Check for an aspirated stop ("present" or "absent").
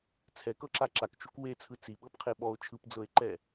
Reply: present